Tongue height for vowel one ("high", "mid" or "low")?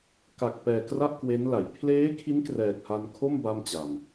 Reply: low